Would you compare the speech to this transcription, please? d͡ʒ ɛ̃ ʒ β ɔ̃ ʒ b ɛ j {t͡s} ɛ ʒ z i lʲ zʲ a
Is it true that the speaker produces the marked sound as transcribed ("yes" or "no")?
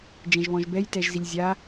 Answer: no